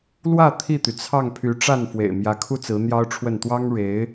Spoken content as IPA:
lwä˥˧ t̪ʰi˥˩t̪y˩t͡sʰɑ˥˩ŋ pʰy˧˥ʈ͡ʂa˥˩n fwḛ˨˩ɪ̯mjä˧˥kʰu˥t͡sɹ̩˧˥ n̪jɑ˥ʊ̯ʈ͡ʂʰwə˥˩n t̪wɑ˥ŋɻe˧˥ɪ̯

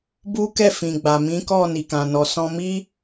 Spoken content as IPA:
bu˦kɛ˦˨ fĩ˨ɡ͡ba˨mĩ˨˦kɔ˦˨ ni˨kã˨nɔ˨ sɔ̃˧mi˦

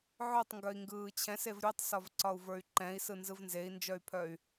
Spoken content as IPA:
ʕœtˤ ŋɡœi̯ŋɡɯːt͡ɕʰɛ̃sev ɾʲotˤsɒvǀɒu̯ və˞y̯ǃɛ̃i̯sɯ nzɯvnzei̯nd͡ʒœy̯pʰœy̯

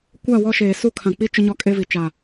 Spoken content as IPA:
kʷa˦˨wɔ˦ʃeː˨ su˦˨kʰã˨k͡pi˦ t͡ʃʊ˦ɲɔ˦kʼe˦vi˨ t͡ʃa˨

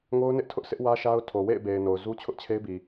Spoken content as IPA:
ŋo˦ʊ̯ nɪ˦ʔtʰʊ˦ʔsʰɪ˦ʔ wä˦ʃa˦ʊ̯tʰo˨ wḛ˦˨ɪ̯be˨ɪ̯ no˨ʊ̯zu˦ t͡ɕʰʊ˦ʔt͡ɕʰe˦ɪ̯bi˨

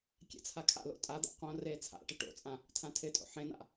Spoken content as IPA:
kʲɛ̰t͡sʰakʰa̰lo̰ tʼad̪a̰ qõ reːt͡sʰa̰ʈɪ ʈo̰t͡sʼã | tʰãtʰɪtʼo̰ ħẽna̰

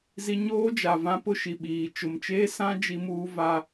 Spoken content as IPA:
zi˦ ɲoː˦d͡ʒa˨ vã˦pʊ˦ʃi˨ɓiː˨ t͡ʃʊ˨mt͡ʃeː˦sã˦ d͡ʒi˦muː˦va˦

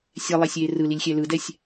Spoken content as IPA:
sʲɛlˠɛsʲeː rɯlilʲxʲɛ lɯdɛsʲ

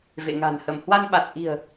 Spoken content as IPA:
vḛ˧˨ŋa̤˨˩n hə˧˩m hwa˧nɓa˨˩t̚ʔi̤˨˩ə̯

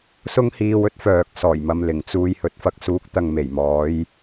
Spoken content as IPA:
sʊ˥ŋhiː˧wɵ˥t̚ fœː˨k̚sɔː˨˩jmɐ˨mlɪ˨˩ŋ t͡suː˧j hɵ˨t̚fɐ˨˥k̚suː˨˥k̚ t̪ɐ˨ŋme˨˩jmɔː˨˧j

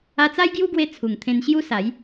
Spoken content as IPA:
a˧t͡sa˦jɡju˦ɡwe˧ t͡sʰu˨˩ŋt̪ʰẽ˧nɕju˦ sa˨˦j

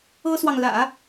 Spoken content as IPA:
ɤ˥swɑ˨ŋlä̰˨˩˦

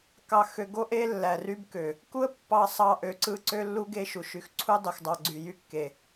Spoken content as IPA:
kɑ˨xø˨ ɡo˦ ʔe˦ lːæ˨ry˦bkø˨ | ku˦ə̯ pːɑ˨sˤɑ˨ ʔø˨ǀɯ˦ǀø˦ lːu˦ɡe˦ʃu˨ ʃy˨xǀʰu˦ dˤy˨xdˤɑ˨ɡ͡ǀy˨ jy˦kːe˨

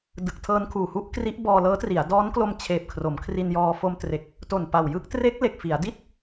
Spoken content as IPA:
dɯ˨˩k̚tʰɤː˧nkʰuː˨˩hu˥˩ʔ kri˦˥ʔbɔː˧lɤː˦˥tri˩˦a̯ dɔː˦˥nklo˧m t͡ɕʰeː˨˩p̚kʰro˩˦mkʰri˧njɔː˧ fo˧mtre˨˩k̚ | to˨˩n pa˨˩wjɯ˥˩k̚ tre˦˥k̚ le˨˩k̚fi˩˦a̯di˥˩t̚

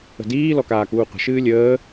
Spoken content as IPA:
ə̤diː lɔkaːkuːqʷə̤ ʃɨːlʲəː

